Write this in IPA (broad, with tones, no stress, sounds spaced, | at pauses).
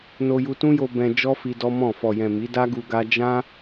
n o˧ j u˧ t ũ˦ j o˧ b ɛ̃˧ d͡ʒ ɔ˦ f i˧ d ɔ˦ m ɔ̃˦˨ f ɔ˨ j ɛ̃˨ m i˨˦ d a˦ ɡ u˧ ɡ a˦ d͡ʒ ã˦